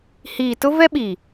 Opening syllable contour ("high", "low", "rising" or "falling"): low